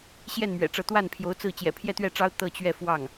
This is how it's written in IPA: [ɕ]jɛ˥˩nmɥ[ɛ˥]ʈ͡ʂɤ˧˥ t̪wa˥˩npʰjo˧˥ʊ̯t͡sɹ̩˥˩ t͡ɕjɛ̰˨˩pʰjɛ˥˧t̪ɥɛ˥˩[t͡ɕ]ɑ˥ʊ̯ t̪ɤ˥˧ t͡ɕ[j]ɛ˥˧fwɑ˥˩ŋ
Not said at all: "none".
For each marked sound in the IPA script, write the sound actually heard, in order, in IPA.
ɕ, ɛ̰˨˩, ʈ͡ʂ, ɥ

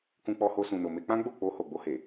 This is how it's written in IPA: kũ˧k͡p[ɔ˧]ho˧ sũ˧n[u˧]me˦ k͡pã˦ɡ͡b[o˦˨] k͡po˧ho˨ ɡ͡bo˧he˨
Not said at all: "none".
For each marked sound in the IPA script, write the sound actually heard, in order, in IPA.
ɔ˧, o˧, o˦˨

